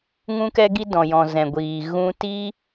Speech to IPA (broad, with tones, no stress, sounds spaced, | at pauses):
ŋ ũ˦ k ɛ˦ ɡ i˦ d ɔ̃˨ j ɔ̃˨ z ɛ̃˨ ɡʷ iː˨ ɣ ũ˧ t i˦